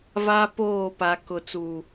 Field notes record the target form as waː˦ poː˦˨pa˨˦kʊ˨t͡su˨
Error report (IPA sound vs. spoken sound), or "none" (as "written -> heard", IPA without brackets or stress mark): w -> v